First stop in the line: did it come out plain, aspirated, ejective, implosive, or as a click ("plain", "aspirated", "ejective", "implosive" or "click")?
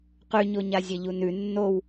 plain